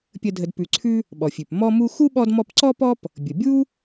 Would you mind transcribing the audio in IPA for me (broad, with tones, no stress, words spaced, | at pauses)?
pʲə˨ dʱə˨dpʉ˨ǀʰʉ˥ | ɓɔ˩fʲʉ˩p mɔ˦mu˦ xu˥ɓɔ˦dmɔ˦pǀɔ˥ pɔ˥p | bʲə˩ bʲu˥